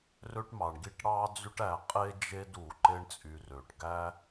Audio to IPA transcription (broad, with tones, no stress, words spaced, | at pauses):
rø˥ʈmɑ˩ɳɡi˥ʈ ɽɑ˦d͡zy˦ʈ æ˨ qʼe˥d͡ʒe˦d u˩ ǃe˦ɳt͡sʼy˨rø˩ʈ ɡæ˦